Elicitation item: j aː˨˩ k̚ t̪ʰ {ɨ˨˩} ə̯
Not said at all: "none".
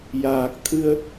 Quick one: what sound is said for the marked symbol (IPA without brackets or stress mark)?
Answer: ɨ˧